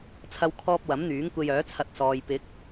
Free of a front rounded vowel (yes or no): no